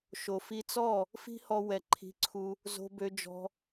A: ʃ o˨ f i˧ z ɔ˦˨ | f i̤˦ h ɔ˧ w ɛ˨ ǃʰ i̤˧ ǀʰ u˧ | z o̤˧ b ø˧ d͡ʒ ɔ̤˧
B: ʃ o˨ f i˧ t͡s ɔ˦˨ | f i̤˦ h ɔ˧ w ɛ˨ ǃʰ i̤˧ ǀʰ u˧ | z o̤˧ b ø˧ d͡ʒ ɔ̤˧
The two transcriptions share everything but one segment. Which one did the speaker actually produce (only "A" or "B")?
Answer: B